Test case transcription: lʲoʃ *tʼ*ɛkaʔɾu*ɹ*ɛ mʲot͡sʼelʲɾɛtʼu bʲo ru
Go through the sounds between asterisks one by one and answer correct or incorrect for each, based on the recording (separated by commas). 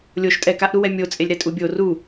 correct, incorrect